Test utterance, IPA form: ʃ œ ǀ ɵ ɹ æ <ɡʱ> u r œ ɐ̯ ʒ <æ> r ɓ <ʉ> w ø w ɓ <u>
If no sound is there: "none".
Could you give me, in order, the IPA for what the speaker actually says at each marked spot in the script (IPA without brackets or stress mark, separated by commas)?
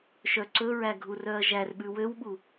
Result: ɡʱ, æ, ʉ, u